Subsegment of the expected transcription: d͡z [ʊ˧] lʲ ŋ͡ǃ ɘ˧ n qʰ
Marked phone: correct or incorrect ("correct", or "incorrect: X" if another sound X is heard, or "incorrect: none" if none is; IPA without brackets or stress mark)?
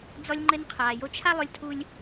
incorrect: ɔ˧